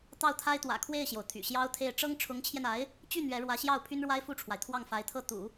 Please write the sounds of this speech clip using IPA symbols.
t̪ ɑ˥˩ ʊ̯ t̪ʰ a˥ ɪ̯ t̪ w ä̰˨˩ kʰ w e˥˩ ɪ̯ ɕ j o˩ ʊ̯ t̪ʰ y̰˨˩ ɕ j ɑ˥ ʊ̯ t̪ʰ e˥˩ ɪ̯ ʈ͡ʂ ɤ˥ ŋ ʈ͡ʂʰ ʊ˧˥ ŋ t͡ɕʰ j ɛ˧ n a˧˥ ɪ̯ | t͡ɕ y˥˩ n̪ ɥ ɛ˧˥ ɻ w ä˧˥ ɕ j ɑ˥˩ ʊ̯ pʰ y˥ n ɻ w a˥ ɪ̯ f u˥˩ ʈ͡ʂʰ w a˩ ɪ̯ t̪ʰ w ɑ˥˩ ŋ f a˧˥ ɪ̯ t̪ʰ ɤ˥˩ t̪ ṵ˨˩˦

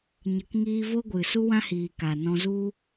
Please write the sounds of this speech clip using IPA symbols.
ɲ ə˨ k ŋ iː˧ v o˦ ɡʷ ɨ˨ s u˦ w ã˦ h iː˨ k a˨ n ɔ̃˧ z u˦

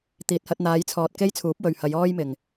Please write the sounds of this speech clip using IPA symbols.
t̪ iː˨ t̚ h ɐ˧ t̚ n̪ aː˨˧ j t͡sʰ ɔː˨ t̚ k e˥ j t͡sʰ uː˨˥ p̚ w ɵ˨ ɥ h ɐ˨˧ j ɔː˥ j m ɪ˨ ŋ

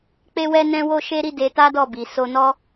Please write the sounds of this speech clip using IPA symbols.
k͡p e˦ w ɛ˦ n ɛ̃˦ w o˦ ʃ e˦ ɾ i˦ d e˧ t a˦ d ɔ˦˨ b i˨ s o˧ n ɔ˦

